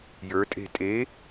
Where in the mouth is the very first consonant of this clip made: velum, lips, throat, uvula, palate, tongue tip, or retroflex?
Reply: palate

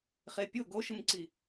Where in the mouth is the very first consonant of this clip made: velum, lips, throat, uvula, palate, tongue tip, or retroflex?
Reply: uvula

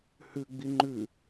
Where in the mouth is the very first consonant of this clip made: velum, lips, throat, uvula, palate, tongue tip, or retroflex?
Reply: throat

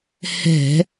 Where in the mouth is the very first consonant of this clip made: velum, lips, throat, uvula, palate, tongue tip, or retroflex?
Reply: throat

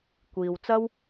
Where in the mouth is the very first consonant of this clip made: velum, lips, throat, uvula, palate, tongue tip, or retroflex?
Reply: velum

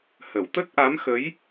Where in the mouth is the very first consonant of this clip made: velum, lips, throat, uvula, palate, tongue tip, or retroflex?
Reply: throat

